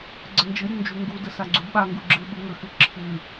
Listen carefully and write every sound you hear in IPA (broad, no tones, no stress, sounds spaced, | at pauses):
ɡ͡ǀ ə n d͡ʒ ɨ ɾʲ u n d͡ʒ u ŋ ɡ u d ə s a ɡ͡ǀ u d ɓ a ŋ ɡ u ɡ͡ǁ ɨ ɓ ɨ ŋ ə x ɨ ǁʰ ɨ